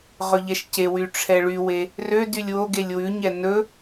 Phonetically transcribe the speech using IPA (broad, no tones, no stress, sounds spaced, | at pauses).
ʁ ɵ ʎ ɛ ʃ c e w y ʈ͡ʂʰ ɛ ɭ y w e | r ø d y lʲ w o ɡ e lʲ w ʉ ɲ ɛ n ɵ